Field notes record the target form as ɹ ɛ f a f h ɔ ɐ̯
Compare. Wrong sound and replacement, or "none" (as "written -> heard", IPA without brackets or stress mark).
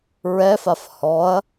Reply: none